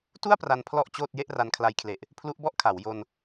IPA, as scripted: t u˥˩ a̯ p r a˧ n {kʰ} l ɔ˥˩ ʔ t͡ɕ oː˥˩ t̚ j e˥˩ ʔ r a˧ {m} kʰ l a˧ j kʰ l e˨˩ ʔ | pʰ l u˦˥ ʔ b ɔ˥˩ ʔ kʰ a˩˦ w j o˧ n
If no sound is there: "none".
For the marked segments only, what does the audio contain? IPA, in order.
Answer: pʰ, n

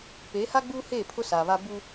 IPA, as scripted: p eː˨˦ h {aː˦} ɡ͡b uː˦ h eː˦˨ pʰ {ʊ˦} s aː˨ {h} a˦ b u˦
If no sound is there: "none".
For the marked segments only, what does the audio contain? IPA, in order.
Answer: a˦, ʊ˦, β

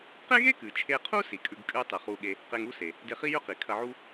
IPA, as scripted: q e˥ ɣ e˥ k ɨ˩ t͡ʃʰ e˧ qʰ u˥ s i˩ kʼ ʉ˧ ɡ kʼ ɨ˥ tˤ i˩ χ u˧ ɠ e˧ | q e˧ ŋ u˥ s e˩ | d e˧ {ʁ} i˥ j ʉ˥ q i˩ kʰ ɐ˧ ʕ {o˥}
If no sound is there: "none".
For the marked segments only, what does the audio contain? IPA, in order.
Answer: χ, u˥

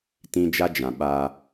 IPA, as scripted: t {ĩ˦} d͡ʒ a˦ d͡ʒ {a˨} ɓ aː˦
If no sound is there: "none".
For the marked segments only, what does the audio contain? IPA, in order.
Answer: ĩ˦, ã˨

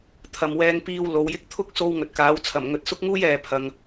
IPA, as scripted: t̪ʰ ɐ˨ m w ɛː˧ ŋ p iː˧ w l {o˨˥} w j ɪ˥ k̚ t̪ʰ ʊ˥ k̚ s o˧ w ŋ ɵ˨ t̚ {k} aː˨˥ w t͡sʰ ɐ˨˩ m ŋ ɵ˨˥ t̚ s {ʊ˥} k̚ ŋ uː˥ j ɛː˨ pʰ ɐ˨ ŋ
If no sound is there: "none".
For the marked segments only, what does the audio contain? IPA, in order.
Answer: o˨˧, k, ʊ˥

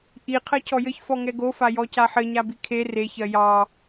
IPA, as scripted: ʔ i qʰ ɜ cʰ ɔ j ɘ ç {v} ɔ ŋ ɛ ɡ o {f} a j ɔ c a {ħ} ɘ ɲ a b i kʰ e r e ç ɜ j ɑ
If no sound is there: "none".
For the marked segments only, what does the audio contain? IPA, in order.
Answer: f, f, ħ

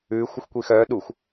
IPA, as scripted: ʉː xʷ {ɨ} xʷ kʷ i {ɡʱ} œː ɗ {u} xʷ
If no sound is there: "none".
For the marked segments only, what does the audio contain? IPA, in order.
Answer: ɨ, x, u

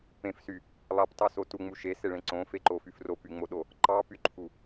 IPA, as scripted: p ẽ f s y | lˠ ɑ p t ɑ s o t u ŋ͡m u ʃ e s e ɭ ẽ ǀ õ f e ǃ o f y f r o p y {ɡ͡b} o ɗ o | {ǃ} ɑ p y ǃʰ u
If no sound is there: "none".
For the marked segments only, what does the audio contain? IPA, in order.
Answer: ŋ͡m, ǃ

